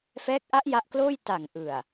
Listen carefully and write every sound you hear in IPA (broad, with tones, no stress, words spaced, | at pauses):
fɛː˦˥k̚ʔa˦˥ʔ ja˦˥ʔkloː˥˩j ta˨˩ŋʔɯ˨˩a̯